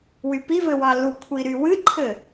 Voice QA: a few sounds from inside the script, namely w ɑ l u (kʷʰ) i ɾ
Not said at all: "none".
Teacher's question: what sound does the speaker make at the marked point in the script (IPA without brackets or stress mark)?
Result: kʷʰ